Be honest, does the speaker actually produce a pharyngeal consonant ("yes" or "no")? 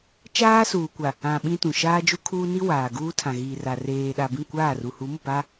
no